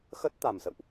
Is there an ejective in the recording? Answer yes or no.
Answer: no